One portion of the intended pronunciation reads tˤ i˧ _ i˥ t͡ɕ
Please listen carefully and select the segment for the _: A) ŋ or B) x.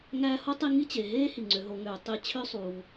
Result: A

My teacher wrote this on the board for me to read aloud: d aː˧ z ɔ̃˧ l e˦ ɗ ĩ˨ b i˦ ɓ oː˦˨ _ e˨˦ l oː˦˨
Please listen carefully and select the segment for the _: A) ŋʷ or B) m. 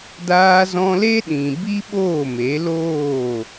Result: B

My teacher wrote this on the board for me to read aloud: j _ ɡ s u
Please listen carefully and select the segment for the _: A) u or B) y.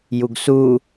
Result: A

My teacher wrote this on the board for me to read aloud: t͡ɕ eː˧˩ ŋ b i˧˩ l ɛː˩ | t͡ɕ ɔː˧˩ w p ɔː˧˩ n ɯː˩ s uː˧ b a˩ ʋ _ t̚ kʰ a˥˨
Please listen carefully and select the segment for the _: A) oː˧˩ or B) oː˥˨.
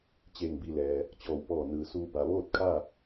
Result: B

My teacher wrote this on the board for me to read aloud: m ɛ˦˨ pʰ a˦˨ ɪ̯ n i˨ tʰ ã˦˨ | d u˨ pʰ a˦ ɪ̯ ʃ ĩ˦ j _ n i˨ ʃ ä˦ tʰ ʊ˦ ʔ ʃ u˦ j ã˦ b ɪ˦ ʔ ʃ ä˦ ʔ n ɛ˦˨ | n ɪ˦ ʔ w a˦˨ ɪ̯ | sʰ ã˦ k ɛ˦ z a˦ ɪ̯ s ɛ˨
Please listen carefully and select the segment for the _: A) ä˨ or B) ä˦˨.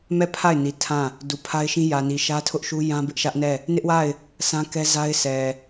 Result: A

